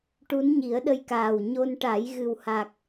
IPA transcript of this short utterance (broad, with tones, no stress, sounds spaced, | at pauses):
ʈ u˧˥ n ɲ i˨˩˦ ə̯ ɗ ə˧ j k aː˨˩ w ɲ o˧ n ʈ a˨˩˦ j ɣ ɨ˨˩ w h a˨˩ k̚